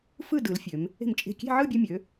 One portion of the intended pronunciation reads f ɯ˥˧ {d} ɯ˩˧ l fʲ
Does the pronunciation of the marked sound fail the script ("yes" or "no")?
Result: no